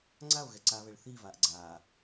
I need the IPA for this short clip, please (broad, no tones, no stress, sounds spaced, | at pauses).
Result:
ŋ͡ǀ a o̯ ɣ ɛ ǀ a β ɛ ɭ θ iː v aː ʔ ɡ͡ǀ aː